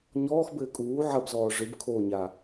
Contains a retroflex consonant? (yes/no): yes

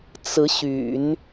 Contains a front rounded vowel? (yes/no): yes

